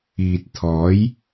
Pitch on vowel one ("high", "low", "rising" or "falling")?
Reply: low